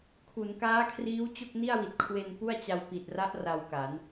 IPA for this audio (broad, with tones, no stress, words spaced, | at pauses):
kʰu˩˦nkaː˦˥kʰriː˦˥w t͡ɕo˥˩k̚ni˥˩a̯wi˨˩t̚ kʰwe˧n pu˥˩a̯ t͡ɕa˧wpi˨˩t̚ra˦˥ʔ ra˧wka˩˦n